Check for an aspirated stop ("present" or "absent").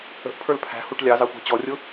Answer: present